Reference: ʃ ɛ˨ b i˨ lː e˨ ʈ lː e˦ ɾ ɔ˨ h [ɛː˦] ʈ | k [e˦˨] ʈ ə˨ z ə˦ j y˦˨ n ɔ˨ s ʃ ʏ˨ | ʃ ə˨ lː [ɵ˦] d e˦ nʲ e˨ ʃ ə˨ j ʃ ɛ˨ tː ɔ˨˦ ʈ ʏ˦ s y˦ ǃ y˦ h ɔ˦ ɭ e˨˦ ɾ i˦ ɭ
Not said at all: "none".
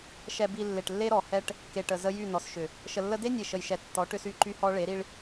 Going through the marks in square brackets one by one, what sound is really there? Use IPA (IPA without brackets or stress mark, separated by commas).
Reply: ɛ˦, e˨, ə˦